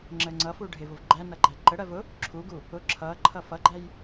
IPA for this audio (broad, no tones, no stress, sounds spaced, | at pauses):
ŋ͡ǁ ə ŋ͡ǀ ʌ f u ɖʱ ɪ v ʊ v ɡ͡ǃ æ n ʌ ɡ͡ǃ æ ǃ ə ɽ ɜ v ʊ | ǁʰ u ɡ u | ʊ ǁʰ ʌ ǃʰ ʌ f ʌ ɡ͡ǃ æ j